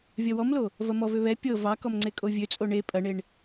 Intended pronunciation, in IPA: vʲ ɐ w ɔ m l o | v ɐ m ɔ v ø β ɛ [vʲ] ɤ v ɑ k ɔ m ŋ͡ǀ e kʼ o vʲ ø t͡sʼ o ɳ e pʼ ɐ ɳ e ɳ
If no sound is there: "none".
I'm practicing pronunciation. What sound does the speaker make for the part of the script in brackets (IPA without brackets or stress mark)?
pʲ